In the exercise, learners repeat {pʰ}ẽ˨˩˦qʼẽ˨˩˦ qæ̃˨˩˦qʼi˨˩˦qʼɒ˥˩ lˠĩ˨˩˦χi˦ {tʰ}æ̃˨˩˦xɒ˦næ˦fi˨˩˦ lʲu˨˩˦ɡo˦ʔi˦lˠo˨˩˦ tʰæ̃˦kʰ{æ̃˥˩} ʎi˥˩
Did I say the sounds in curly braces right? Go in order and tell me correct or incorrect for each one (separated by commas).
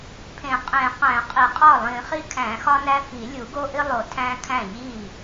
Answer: correct, incorrect, correct